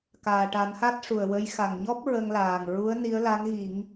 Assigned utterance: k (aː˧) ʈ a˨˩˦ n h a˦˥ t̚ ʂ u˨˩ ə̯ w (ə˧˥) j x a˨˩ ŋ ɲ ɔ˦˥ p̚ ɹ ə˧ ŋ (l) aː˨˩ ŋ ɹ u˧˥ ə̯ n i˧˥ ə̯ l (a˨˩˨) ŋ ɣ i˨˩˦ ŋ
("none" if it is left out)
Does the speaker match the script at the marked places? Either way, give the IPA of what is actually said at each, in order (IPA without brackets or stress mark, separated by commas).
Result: aː˨˩, ə˧˥, l, a˧˥